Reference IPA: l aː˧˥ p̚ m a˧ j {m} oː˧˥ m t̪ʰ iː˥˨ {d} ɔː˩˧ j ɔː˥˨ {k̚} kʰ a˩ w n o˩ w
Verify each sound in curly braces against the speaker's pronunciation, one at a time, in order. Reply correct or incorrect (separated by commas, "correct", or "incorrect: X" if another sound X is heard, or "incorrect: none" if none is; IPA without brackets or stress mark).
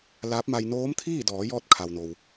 incorrect: n, correct, incorrect: t̚